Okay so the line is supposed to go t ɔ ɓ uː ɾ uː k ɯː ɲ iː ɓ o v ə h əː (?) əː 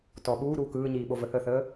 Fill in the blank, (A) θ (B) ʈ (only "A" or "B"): A